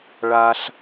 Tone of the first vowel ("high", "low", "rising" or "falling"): high